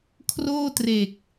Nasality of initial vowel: oral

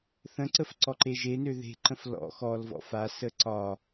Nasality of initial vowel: nasal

